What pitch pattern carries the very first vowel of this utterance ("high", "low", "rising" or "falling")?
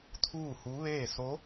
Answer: falling